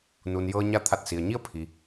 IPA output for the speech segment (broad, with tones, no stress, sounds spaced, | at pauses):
n u˩ n j ɤː˧ ɲ a˧ t̪ʰ a˧˩ t̚ s i˩ ə̯ ɲ i˥˨ ə̯ pʰ i˩